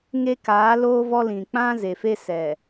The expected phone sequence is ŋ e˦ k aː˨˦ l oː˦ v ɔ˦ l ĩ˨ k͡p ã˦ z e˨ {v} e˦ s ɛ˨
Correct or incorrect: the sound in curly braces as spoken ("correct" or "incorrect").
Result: incorrect